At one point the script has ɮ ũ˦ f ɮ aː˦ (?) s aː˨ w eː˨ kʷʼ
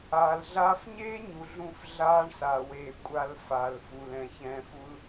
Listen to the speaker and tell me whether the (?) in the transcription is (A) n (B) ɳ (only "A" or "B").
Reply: B